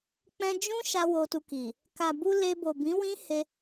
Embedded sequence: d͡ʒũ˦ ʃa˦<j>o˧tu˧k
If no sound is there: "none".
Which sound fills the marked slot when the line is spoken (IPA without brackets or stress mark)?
w